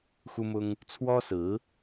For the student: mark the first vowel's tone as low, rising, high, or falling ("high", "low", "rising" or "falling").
high